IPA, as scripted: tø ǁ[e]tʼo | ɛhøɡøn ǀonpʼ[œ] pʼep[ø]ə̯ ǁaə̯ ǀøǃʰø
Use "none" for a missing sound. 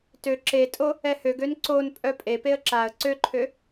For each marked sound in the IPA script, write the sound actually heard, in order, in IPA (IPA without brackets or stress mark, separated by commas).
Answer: e, œ, e